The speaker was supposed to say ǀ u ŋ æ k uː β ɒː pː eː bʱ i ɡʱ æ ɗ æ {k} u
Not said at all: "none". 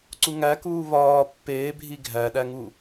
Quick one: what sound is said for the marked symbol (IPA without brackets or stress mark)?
ŋ